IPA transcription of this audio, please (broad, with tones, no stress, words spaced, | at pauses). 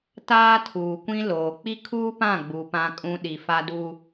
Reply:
taː˦tʰuː˨kʷĩ˦ loː˨ k͡pi˦kʰuː˦pã˦˨ ɡ͡bu˨ pã˨kʼũ˨ ɗi˨fa˦du˦